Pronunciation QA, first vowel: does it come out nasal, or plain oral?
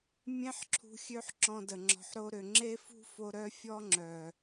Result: nasal